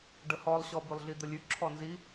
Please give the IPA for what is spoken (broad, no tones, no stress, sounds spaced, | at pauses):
ɖ ə h ɔ lˠ ɕ ɔ b ʉ lˠ ɮ i d̪ ə lʲ ʉ ǁʰ ɔ n z i